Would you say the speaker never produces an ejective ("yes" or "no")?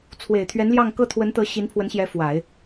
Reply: yes